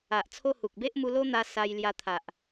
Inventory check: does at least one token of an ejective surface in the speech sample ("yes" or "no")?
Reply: no